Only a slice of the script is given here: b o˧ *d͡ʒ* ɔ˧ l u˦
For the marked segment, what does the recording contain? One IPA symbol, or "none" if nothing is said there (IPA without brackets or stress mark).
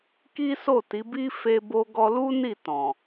ɡ